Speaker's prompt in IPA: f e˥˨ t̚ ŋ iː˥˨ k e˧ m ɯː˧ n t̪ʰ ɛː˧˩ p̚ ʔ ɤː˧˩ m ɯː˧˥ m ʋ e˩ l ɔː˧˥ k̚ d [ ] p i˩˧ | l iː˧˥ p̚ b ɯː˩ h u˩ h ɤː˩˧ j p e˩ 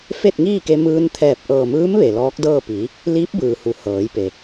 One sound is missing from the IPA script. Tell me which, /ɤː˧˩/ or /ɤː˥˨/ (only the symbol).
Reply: ɤː˥˨